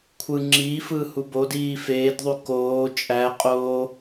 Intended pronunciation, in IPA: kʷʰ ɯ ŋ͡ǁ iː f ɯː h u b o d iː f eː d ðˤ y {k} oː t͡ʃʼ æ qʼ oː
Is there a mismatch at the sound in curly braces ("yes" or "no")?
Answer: no